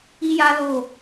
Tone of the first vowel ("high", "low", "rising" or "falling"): high